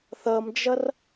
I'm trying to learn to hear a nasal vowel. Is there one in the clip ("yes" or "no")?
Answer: no